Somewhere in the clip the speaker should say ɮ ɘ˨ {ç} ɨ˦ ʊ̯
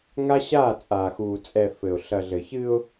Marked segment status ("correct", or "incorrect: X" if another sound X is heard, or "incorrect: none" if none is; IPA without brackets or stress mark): correct